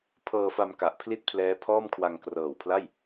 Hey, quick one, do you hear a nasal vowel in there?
no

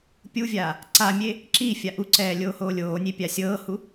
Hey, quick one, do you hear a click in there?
yes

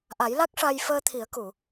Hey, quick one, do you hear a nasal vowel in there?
no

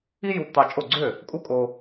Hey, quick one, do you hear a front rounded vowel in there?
yes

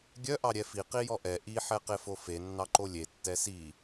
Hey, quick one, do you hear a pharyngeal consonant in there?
yes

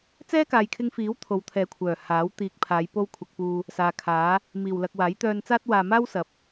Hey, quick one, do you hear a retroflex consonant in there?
no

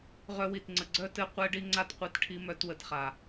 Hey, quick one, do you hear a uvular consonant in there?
yes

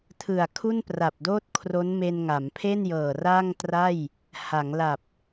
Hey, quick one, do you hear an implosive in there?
no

